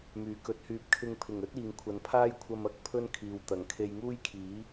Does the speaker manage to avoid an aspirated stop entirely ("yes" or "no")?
no